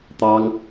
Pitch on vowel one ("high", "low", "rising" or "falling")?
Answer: high